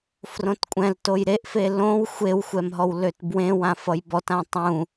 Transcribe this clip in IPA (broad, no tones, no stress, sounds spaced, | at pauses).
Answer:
f r õ t kʷʼ ɛ̃ l t o j ɾ e ʔ f e l õ w xʷ e w xʷ ɛ m ɦ ɔ w l ø t b w ẽ w ã f ʌ j b ɔ t ã tˤ ũ